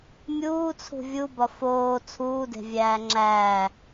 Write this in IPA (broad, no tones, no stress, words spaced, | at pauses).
mʲuːt͡sʰṳ vʲubɒ foː t͡sʰuːde̤vʲæː ŋ͡ǁæː